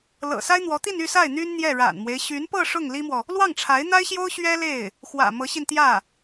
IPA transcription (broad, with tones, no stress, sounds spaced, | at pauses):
l ɤ̰˨˩ s a˥ ɪ̯ n̪ w ɔ˧˥ t̪ i˥˧ n y˥˧ s a˥˩ ɪ̯ n̪ y˥ n n̪ j ɛ˥˩ ɻ a̰˨˩ n m w e˦ ɪ̯ ɕ y˧˥ n p ɤ˥˧ ʂ ʊ˥˩ ŋ l i˥ m w ɔ˨ | l w ɑ˥˩ ŋ ʈ͡ʂʰ a˧˥ ɪ̯ n̪ a˥ ɪ̯ ɕ j o˥ ʊ̯ ɕ ɥ ɛ˥ l e˥˩ ɪ̯ | x w ä̰˨˩ m ɤ˧˥ ɕ i˧ n t̪ j ä˥˩